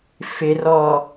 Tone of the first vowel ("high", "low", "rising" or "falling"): low